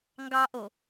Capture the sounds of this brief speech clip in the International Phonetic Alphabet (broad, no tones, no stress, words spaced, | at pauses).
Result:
ŋɡɑʔo